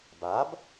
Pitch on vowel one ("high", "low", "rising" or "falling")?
rising